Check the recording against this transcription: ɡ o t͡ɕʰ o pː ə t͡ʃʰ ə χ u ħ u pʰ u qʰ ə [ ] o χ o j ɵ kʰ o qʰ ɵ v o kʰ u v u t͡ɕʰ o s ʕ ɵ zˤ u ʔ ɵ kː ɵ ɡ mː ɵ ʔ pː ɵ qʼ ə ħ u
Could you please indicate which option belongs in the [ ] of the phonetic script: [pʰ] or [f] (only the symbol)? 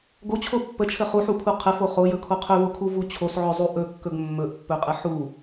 f